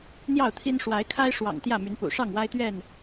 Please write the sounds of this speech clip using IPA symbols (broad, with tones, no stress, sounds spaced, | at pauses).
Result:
n̪ j ɑ˥˨ ʊ̯ t̪ʰ i˦ n ʂ w a˨˦ ɪ̯ kʰ a˦ ɪ̯ ʂ w ɑ̰˨˩ ŋ t̪ j ä˥˨ m y˨˦ n p ṵ˨˩ ʂ ɑ˥˨ ŋ w a˦ ɪ̯ t̪ ɥ ɛ˥˨ n